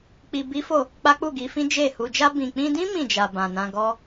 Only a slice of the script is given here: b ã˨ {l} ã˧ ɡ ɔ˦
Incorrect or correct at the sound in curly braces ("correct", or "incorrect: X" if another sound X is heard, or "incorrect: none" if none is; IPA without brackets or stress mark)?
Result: incorrect: n